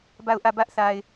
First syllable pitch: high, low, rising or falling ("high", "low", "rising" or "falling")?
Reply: falling